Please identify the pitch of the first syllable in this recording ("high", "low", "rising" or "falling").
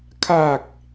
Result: low